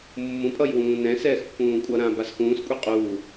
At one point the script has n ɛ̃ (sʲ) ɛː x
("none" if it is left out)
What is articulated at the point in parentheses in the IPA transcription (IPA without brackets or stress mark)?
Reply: s